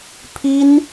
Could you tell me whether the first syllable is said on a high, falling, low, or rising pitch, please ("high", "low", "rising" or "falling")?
high